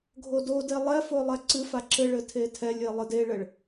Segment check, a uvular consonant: absent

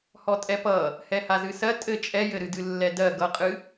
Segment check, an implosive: absent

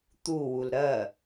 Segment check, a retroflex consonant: absent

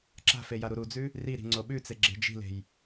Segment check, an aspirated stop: absent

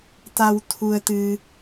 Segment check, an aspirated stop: present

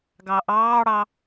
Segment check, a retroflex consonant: present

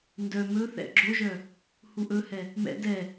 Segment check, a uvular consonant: absent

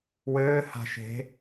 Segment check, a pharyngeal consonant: absent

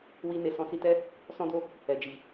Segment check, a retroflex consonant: absent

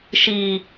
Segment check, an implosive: absent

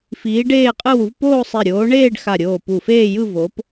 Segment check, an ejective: present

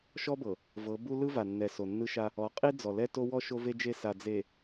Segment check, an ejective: present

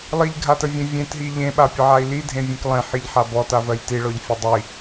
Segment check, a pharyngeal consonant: present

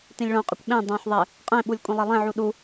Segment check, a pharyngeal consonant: present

